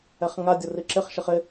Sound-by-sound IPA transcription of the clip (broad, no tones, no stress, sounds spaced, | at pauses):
ɛ χ ŋ a dʲ ʊ r i ǁ ɪ χ ʃ ɪ χ ɪ